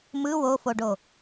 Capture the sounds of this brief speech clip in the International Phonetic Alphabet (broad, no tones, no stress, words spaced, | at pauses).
mɯ wofoɖo